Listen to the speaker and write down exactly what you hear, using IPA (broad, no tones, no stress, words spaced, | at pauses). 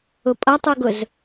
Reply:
ʊpʼʌtˤuɡʊz